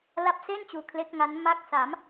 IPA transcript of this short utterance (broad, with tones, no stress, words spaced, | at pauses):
la˦˥p̚se˥˩n t͡ɕuː˧kʰle˦˥k̚ŋa˦˥n ma˦˥k̚sa˩˦m